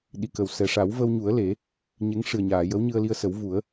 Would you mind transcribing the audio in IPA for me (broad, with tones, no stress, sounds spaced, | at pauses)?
ɗ i˨˩˨ k ə˨˩ w s ɛ˨˩ ʂ a˨˩˦ w v ə˧ w ɲ u˨˩˦ ə̯ l e˨˩˦ | ɲ e˧˥ ŋ ʂ ɨ˨˩ ə̯ ɲ aː˨˩˨ j ə˧˥ w ɲ ɨ˧ ə̯ l i˧ ə̯ s ə˨˩˦ w v u˨˩˦ ə̯